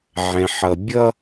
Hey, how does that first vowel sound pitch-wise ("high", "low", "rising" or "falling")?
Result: low